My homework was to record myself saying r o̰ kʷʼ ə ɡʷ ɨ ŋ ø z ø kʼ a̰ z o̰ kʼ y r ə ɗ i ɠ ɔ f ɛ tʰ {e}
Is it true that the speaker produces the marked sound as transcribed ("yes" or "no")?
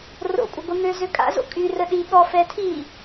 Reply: no